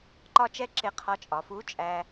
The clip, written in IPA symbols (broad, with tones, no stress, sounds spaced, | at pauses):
ǃ ɒ˥ t͡ʃ ɛ˥ ǁ ɪ˧ qʰ ɒ˧ t͡ʃʼ ɒ˩˧ f u˧˥ t͡ʃʼ æ˧